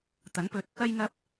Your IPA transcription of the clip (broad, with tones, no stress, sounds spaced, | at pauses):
t̪ ɐ˨˥ n p ɵ˧ t̚ | ɐ˥ j ŋ ɐ˥ p̚